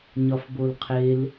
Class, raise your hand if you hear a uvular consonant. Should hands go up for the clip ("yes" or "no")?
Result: yes